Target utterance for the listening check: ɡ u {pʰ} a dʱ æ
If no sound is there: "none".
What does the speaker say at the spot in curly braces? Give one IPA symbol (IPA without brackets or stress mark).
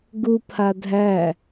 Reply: pʰ